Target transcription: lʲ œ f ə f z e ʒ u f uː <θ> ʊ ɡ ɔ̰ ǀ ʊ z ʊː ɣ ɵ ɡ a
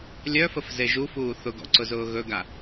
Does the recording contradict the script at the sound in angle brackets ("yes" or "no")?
no